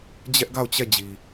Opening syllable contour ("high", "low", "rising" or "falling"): high